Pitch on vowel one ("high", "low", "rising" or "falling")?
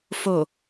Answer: low